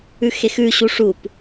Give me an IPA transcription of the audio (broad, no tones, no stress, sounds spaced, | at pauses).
ʉ x e x ʉ ɕ u ʂ u p